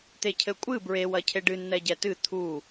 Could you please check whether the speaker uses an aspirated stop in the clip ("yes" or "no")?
yes